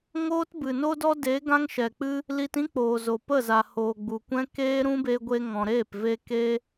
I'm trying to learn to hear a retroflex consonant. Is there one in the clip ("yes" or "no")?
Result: no